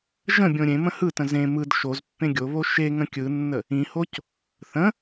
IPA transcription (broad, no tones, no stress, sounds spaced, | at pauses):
ʒ ə̃ bʲ õ ɾʲ ẽ m ə̃ h ɯ t ə̃ z ẽ m ɯ d ʃ o z pː ẽ ɡʲ o β o ʃ e ŋ ə̃ kʲ ɯ nː ə | ĩ h o c | θ ə̃